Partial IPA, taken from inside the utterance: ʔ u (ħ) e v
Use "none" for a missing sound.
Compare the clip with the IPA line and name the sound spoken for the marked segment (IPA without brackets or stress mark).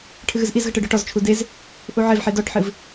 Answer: ʕ